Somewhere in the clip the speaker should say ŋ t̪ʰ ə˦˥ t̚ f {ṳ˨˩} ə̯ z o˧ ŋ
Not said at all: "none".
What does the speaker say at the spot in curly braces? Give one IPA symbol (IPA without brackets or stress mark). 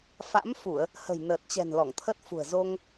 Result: ṳ˨˩